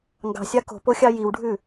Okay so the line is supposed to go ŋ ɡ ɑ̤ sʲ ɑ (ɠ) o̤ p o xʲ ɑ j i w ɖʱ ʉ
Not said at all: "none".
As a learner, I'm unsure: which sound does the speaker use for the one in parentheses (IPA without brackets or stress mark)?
k